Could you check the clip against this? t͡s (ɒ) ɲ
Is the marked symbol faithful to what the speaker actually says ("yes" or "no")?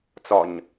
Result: yes